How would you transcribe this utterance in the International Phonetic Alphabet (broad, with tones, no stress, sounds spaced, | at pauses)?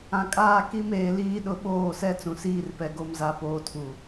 ã˨ kʼ aː˦˨ k i˦ m eː˨ l iː˦ ɗ ʊ˦ ɓ oː˦˨ s ɛ˦ t͡s ũ˨ s iː˦ r p ɛ˨ ɡ o˨ m z a˨ p oː˨ tʰ u˨